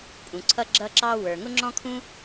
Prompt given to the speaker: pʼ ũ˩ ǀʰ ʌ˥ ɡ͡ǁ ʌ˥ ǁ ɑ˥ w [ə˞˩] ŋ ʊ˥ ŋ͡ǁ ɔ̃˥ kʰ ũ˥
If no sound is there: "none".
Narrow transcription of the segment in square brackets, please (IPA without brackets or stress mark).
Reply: ə˞˩